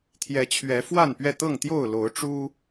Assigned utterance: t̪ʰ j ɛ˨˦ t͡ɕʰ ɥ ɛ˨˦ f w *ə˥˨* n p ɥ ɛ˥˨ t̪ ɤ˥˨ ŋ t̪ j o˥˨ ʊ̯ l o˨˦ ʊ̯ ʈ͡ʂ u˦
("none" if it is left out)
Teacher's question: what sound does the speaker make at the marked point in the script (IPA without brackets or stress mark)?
a˥˨